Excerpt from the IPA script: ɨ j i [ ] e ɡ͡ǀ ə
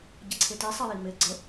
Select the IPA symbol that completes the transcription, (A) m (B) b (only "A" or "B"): A